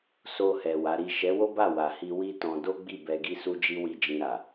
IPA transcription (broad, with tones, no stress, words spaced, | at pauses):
so˧hɛ˨ wa˨˦ɾi˦˨ ʃɛ˨˦wo˦ba˦˨ wa˨hi˧ wi˦tɔ̃˧ do˦ɡ͡bi˦˨ bɛ˧ɡi˦ su˦d͡ʒi˦ wi˦˨d͡ʒĩ˧ɾa˨